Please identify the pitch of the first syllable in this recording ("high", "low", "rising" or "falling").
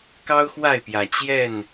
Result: high